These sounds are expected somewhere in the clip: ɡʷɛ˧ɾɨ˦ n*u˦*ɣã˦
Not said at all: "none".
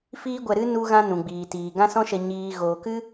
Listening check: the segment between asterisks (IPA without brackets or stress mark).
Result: u˦